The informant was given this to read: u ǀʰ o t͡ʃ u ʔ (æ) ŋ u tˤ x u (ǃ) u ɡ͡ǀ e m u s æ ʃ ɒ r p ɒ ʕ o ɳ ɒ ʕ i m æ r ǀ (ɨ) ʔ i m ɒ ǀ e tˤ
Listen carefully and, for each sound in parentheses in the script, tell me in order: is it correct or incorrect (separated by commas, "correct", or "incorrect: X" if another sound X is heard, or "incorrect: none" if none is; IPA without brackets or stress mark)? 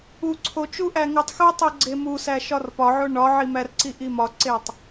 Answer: correct, incorrect: tˤ, incorrect: i